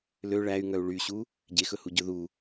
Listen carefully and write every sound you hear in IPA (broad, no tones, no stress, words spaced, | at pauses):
lø ɭæy̯ŋœu̯ ɭyɕu | ɟexɵhu ɟɵðu